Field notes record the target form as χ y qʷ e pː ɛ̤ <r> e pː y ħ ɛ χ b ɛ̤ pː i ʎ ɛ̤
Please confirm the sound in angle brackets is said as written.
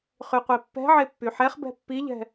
no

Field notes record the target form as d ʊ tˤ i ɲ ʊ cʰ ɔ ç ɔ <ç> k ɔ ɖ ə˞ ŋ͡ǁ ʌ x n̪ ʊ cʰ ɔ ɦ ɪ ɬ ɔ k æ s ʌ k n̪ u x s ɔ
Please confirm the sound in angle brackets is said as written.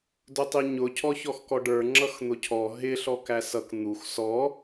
no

